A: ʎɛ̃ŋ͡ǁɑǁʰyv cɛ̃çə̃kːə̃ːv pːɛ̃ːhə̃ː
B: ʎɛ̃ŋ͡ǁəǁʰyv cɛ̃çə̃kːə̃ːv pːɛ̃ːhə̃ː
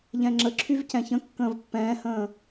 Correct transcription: B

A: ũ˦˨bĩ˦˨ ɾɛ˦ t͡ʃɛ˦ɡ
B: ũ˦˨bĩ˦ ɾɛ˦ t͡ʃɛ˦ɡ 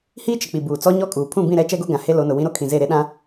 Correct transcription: A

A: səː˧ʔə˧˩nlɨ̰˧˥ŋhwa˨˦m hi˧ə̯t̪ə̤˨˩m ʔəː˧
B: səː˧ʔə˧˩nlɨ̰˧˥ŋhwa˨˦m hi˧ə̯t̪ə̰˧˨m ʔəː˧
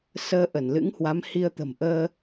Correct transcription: A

